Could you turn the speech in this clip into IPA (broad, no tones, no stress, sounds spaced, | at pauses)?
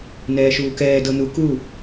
n ɛː ʃ uː k ɛː d ɤ n u k u